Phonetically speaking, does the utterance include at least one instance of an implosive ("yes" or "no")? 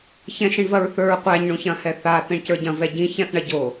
no